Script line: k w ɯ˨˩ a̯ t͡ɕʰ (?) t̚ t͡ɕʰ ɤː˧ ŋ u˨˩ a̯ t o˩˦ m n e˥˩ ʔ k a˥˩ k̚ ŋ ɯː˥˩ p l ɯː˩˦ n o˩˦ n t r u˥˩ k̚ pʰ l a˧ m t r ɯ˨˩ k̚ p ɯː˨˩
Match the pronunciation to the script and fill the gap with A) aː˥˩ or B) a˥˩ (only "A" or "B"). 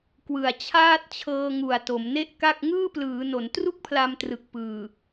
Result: A